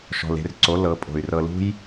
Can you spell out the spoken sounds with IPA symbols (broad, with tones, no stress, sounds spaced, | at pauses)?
ʃ ɔ̤˨ l e̤˧ r ǀ o˨˦ l ɤ˨˦ pʼ o̤˨ y̯ r ɤ˧ l ṳ˦ j